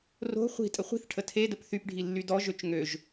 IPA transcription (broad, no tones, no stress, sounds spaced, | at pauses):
r o̤ χʷ i̤ tʼ ə χʷ i̤ θ ʈʰ ə tʰ e d ə p θ y p ɖʱ i lː y d ɔ ʒ ø t͡ʃ ŋ ø ʒ